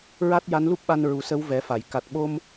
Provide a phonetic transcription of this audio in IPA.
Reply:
ɹa˦˥t̚ja˧˥nlu˦˥p̚ɓa˧n ɹu˨˩sə˧˥w vɛ˨˩˦fa˨˩˨j ka˨˩t̚ɓo˧m

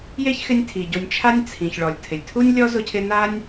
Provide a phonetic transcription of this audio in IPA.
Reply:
je˥çxɪ˦nʲtʰi˩ɟo˨nʲ t͡ʃʰa˦nʲt͡sʰĩ˩çɭɔ˩lʲ tʰɪ˩lʲtʰu˥nʲ lʲɔ˥zʊ˦cʰɪ˦ na˥nʲ

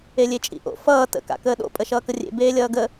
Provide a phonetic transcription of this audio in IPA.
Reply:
elʲet͡ʃʼḭʔo̰ fʌː tə̰ka̰kəː ɗo̰pʼə ʃʌːkərʲḛ beːlʲʌːɡə

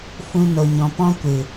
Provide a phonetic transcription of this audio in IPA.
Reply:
fũ˦no˧ɲɔ̃˧ pɔ̃˦kʷɨ˨

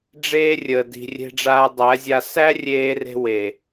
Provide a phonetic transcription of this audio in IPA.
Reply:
ɖ͡ʐeː˦ rʲəː˨di̤˨ rʲe̤˧ɖ͡ʐaː˧dˤæ˨˦zʲa˧ sæ˦ rʲeː˧re̤˧ we˨

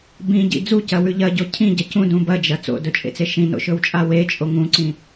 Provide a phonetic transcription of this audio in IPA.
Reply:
bĩɟḭ d͡zucɐwʉ ʎɐɟo cʰĩɟɐ cũdũ bɐd͡ʒɐ t͡so̰dɵt͡ʃʼḛt͡se ʃĩno̰ʃɵwt͡ʃʼa wet͡ʃʼo ŋũǀĩ

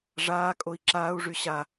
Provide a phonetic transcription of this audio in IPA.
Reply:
ʐaːkʼoi̯ ǁaːu̯ʐy ɕa

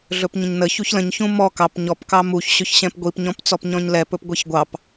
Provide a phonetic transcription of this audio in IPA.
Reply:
ɮɵpɲə̃ɲnəçuç lə̃ɲçũ mɔ kɑp ɲɔp kɑmuç ɕɵçɕɛ̃pɡʷip ɲɔ̃pt͡sɔpɲɔ̃ɲlɛ pɵpɡʷɛçɡʷɑp

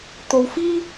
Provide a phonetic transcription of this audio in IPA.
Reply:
t̪o˧wfiː˥

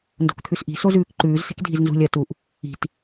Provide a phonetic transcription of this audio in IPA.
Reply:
ndo̤kt̪ʰʉsʔi̤ sozʉːkǃʉːz se̤kdʱiznzṳlʲ ɐ tuʔ | i̤t

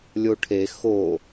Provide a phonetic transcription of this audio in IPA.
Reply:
lʲoʈʰe xo

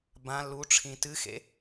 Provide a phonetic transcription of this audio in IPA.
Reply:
bã lu ʈ͡ʂʰĩtɨxḛ

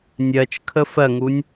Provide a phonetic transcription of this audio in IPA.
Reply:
nʲɜt͡ʃkʰə fɜŋunʲ

